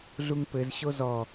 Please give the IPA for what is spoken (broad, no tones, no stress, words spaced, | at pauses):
ɮuŋpɘz ɕozɔ